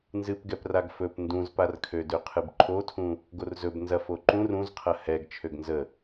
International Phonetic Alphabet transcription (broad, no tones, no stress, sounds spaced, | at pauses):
n z ɨ p ɡ ɛ p r a ɡ f ɵ p n d ũ z p a r kʰ ø d ø qʰ ɨ b ǃʰ o tʰ ũ | ɡ o r z ɵ b n z ɐ f o ǃ ũ r ũ z qʰ ɐ h ɛ ɡ t͡ʃʰ ø ɡ n z ə